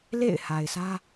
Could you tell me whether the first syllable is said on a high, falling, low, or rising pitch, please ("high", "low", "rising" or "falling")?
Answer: falling